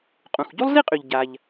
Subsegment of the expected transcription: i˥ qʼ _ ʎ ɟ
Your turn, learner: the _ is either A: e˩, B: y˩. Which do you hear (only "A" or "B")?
B